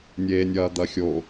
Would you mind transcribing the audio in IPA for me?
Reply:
nʲ eː nʲ ɐː d̪ ɐ xʲ o

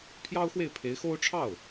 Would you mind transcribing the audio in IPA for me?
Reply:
pʰ j ɑ˥ ʊ̯ x w e˥˩ ɪ̯ pʰ e˧˥ ɪ̯ x o˥ ʊ̯ ʈ͡ʂʰ ɑ˥˩ ʊ̯

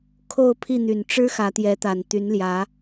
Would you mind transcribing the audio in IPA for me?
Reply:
kʰ o˥˨ ʊ̯ pʰ i˥˨ n̪ y˨˩ n ʈ͡ʂ ɻ̩˦ x ä˨˦ t̪ j ɛ˨˦ t̪ a˨˩ n t̪ y˨˦ n l j ä˨˦

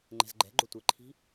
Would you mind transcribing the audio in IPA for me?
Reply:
ŋ͡ǃ ɛ̤ z ɡ͡ǃ ɛ̤ ɡ͡ǃ o tʷ e ǃʰ i̤

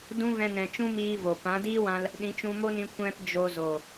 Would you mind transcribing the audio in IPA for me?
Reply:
d ũ˦ v ɛ̃˧ n ɛ̃˨ t͡ʃ ũ˦ m iː˦ v o˨ p ã˨˦ d iː˦ w ã˧ l | ɗ ĩ˨˦ t͡ʃ ũ˧ m o˦ n ĩ˧ kʷ ɛ̃˦ p d͡ʒ o˧ z o˨

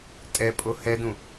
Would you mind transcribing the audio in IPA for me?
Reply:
tʼ ɛ pʼ o h ɛ d ũ

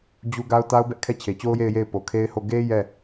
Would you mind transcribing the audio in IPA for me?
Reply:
d͡ʑ u˦ ɡ a˦ ʊ̯ t a˦ ʊ̯ b ɛ˦ ʔ kʰ ɛ˦˨ t͡ɕʰ e˨ t͡ɕ o˦ ʊ̯ j e˦˨ ɪ̯ j e˦˨ ɪ̯ p o˨ kʰ e˦ ɪ̯ h o˦˨ ɡ e˦ j ɛ˦˨

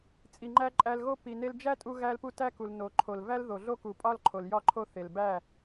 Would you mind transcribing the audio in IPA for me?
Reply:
t͡sʼ i˨ ŋ͡ǃ æ˧ ǃʼ æ˧ l ɣ o˦ p i˨ n e˧ l d͡ʒ æ˦ tʼ u˧ ɣ æ˧ l p u˧ t æ˦ k u˨ l n o˨ ǃʰ o˨ l v æ˦ l ð o˨ ɮ o˦ k u˨ pʼ ɒ˦ l ǃʰ o˨ l j ɒ˦˨ ǃʰ o˦ θ e˨ l b æ˦˨

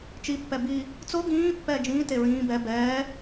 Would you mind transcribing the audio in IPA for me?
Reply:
t͡ʃ i pː ɛ b i | t͡s o ɡ ĩː pː ɛː d͡ʒ ĩː t e ɹ ĩː b ɛ b ɛː

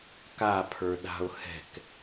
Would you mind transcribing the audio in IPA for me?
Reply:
k a pʰ ə˞ ɗ a̤ ʊ̯ h ɛ̤ k

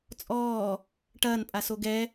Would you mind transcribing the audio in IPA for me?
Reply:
t͡sʼ ɔː | ʈ ɐː n pʼ a s o ɡ ɛ

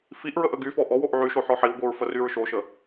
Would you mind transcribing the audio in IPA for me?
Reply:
f i ʔ ɹ ə ʔ ə ɡ y f ɔ ʔ ɔ w o ʔ ʕ y ʃ o ħ ɔ ħ i w ɡʷ i ɹ f ə r y ɹ ʃ o ʃ ə

